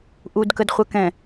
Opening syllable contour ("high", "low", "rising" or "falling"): low